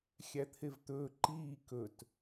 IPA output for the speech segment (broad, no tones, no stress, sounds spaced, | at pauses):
xʲ æ t̪ʰ e v t̪ ɵː ǃ iː k ɵ t